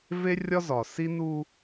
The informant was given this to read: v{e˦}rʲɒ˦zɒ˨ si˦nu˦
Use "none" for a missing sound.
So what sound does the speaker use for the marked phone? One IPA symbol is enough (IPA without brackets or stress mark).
e˦